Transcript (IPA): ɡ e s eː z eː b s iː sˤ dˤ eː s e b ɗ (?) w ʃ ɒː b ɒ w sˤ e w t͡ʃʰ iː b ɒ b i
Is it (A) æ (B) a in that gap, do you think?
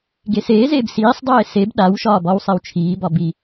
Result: B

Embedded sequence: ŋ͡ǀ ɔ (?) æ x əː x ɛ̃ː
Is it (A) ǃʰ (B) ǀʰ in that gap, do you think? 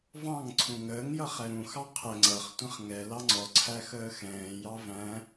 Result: B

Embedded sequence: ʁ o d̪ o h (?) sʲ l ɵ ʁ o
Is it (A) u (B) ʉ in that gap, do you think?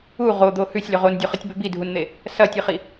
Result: B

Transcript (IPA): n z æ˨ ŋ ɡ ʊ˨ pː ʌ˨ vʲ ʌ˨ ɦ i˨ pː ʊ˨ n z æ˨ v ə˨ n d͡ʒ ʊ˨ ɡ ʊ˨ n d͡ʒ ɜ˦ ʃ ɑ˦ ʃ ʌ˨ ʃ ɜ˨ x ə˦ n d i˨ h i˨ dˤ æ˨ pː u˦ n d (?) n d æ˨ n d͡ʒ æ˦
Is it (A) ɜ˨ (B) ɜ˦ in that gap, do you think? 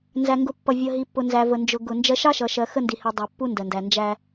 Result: A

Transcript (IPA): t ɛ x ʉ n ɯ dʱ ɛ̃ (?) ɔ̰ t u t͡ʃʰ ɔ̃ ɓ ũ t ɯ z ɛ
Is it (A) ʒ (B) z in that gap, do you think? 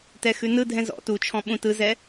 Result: B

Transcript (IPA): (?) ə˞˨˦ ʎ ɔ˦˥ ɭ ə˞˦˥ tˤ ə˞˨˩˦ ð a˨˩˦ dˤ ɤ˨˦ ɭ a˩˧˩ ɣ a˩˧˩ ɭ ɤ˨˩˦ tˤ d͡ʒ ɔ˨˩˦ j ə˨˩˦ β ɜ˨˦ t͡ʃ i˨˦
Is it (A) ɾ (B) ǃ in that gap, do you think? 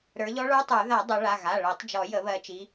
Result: A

